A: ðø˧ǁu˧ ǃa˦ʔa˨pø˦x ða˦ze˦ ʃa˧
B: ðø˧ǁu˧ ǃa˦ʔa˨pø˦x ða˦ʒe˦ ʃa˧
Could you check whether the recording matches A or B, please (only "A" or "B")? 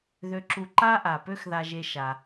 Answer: B